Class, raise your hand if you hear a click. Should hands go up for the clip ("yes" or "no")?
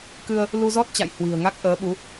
no